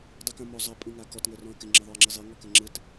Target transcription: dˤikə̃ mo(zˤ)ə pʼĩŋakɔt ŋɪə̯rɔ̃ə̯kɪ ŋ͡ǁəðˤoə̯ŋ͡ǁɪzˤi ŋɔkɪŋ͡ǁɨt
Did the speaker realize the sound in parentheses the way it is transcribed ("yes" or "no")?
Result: yes